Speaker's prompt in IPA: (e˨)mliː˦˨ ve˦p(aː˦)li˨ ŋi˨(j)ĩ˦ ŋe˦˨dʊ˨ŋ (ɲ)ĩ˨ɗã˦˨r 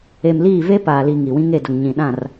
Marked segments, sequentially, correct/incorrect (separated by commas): correct, incorrect, incorrect, correct